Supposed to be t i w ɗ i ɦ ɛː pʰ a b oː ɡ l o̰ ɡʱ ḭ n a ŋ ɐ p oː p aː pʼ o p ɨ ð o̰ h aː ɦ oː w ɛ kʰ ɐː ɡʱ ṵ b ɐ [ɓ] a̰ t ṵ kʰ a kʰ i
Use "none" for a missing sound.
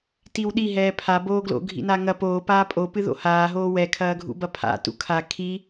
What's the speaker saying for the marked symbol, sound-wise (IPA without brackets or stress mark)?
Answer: pʰ